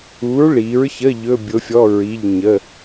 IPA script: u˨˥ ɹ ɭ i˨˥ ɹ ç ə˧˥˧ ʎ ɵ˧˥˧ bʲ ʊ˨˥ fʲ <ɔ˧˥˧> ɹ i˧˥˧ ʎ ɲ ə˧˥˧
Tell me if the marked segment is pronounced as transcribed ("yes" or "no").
yes